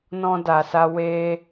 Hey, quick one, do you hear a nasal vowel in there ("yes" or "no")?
yes